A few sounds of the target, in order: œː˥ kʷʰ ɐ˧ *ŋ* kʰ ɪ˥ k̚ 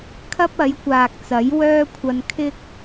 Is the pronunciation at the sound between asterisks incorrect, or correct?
incorrect: n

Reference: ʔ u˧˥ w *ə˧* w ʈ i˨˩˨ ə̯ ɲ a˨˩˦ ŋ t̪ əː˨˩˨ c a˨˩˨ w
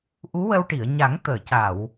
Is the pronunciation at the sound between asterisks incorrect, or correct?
correct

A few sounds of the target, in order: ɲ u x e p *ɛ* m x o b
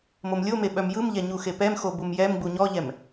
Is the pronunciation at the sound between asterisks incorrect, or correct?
correct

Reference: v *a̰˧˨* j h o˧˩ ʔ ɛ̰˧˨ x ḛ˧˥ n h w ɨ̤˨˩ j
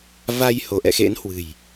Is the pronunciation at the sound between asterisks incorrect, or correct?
incorrect: a˧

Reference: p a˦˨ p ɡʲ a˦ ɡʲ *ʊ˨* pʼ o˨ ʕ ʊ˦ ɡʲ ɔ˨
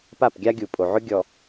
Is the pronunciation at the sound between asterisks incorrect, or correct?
incorrect: u˨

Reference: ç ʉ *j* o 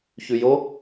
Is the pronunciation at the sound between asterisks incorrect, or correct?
correct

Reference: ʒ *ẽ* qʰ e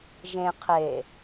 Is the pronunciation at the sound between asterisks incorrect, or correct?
correct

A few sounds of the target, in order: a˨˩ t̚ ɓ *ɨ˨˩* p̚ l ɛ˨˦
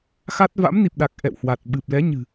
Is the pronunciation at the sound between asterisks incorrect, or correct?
correct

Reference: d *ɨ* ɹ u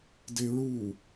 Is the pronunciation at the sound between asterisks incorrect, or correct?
incorrect: e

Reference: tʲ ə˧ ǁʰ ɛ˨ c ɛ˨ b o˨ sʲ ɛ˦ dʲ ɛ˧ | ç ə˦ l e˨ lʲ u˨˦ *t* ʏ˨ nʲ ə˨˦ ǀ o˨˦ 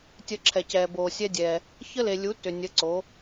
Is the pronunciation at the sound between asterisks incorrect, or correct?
correct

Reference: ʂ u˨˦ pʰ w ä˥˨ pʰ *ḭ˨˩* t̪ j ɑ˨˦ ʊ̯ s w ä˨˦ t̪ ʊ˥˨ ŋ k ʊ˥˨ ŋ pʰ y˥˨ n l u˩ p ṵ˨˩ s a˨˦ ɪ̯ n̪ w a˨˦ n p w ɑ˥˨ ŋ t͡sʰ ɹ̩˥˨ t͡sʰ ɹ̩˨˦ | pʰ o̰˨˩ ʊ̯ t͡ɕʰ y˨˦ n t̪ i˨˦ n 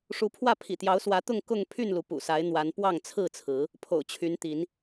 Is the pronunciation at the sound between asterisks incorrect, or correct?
correct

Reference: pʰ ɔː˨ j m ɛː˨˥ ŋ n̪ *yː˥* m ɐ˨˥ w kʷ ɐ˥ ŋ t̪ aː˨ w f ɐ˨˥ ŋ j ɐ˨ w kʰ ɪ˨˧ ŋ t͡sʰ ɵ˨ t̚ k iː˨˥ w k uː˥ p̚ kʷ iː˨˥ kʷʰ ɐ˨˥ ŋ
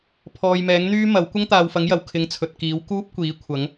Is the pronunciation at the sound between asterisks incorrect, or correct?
correct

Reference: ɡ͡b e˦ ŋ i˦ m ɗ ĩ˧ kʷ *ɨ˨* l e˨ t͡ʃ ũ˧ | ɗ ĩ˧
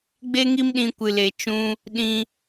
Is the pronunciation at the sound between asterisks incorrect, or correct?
correct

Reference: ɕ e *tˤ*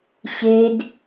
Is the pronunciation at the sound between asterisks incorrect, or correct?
incorrect: d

